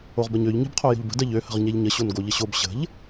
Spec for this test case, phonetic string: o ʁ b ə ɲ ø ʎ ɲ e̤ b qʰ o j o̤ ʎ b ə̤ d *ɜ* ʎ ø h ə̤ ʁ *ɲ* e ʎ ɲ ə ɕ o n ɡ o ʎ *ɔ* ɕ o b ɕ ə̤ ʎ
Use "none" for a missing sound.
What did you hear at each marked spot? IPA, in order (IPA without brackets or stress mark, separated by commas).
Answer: ɜ, ɲ, ə